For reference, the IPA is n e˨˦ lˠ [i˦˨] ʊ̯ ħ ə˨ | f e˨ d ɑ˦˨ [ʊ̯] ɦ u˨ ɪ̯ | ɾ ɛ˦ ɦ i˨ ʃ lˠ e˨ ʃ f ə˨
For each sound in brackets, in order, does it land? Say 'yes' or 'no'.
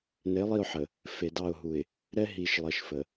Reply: yes, yes

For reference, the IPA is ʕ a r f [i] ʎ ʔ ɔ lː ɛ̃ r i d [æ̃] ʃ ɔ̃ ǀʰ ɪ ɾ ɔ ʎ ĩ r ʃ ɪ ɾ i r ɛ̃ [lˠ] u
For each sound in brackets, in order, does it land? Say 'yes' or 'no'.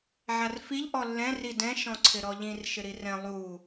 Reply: yes, no, yes

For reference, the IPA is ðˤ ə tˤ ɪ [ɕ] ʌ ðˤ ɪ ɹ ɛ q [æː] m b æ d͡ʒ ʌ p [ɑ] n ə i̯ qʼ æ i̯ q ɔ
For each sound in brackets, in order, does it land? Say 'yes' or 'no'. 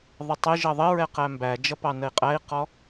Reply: no, no, yes

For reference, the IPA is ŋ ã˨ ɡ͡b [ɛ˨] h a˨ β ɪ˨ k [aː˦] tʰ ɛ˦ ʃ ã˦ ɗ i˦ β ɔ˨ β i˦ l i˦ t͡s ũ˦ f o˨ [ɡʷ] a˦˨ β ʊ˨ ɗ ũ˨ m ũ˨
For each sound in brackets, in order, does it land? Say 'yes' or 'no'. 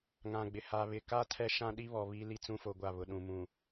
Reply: no, yes, yes

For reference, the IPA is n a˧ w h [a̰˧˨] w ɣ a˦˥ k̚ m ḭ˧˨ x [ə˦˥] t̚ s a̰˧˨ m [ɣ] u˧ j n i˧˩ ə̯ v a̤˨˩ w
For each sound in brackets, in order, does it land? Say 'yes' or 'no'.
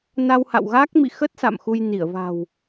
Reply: yes, yes, no

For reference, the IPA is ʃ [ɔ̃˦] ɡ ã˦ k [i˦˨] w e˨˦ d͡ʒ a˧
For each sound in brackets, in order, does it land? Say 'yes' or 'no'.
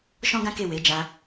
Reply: yes, no

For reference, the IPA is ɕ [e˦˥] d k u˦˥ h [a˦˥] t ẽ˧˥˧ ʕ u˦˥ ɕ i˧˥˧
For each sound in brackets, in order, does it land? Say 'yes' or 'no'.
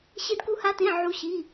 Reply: yes, yes

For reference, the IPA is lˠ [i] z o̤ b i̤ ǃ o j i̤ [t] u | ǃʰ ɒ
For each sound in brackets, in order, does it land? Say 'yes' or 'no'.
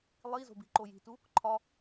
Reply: yes, yes

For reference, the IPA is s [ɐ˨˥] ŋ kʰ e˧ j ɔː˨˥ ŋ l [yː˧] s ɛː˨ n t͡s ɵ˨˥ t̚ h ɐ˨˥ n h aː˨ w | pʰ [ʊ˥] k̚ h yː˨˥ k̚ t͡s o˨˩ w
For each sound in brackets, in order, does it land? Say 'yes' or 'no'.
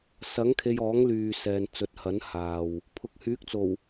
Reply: yes, no, no

